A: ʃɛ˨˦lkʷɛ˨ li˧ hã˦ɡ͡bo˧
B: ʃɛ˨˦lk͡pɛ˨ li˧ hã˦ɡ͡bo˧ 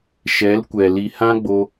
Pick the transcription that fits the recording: A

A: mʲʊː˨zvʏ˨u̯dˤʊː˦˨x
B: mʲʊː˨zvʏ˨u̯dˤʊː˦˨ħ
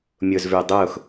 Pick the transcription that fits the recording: A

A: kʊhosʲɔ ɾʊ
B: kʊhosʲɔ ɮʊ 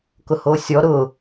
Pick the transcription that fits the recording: A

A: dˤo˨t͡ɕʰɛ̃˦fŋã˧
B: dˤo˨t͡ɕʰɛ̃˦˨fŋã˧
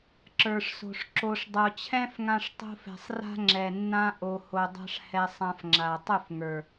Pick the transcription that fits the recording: A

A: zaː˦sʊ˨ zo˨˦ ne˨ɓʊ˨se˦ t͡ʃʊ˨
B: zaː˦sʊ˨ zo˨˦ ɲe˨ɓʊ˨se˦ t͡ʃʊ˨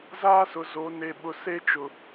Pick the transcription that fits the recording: A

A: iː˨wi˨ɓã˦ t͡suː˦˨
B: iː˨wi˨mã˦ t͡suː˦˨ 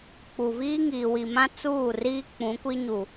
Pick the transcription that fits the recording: B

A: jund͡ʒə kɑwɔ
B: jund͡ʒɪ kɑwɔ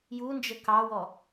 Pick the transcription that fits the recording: A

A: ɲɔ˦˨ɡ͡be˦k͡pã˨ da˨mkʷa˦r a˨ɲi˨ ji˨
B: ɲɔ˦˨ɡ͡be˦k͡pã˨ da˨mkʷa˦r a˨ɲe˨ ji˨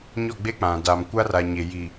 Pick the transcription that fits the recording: B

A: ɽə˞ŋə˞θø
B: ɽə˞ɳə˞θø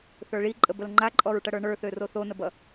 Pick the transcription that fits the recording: B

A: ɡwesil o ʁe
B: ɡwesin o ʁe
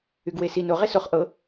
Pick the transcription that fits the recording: B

